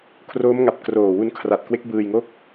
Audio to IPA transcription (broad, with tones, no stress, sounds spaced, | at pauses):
kʰ r oː˦˥ m ŋ a˨˩ p̚ k r oː˨˩ w u˧ n kʰ r a˨˩ t̚ k w e˦˥ k̚ b ɯː˧ j ŋ o˥˩ k̚